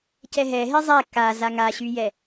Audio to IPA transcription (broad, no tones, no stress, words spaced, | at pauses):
cɛɦɛɦe zˤɛ ka zaŋaɕyjɛ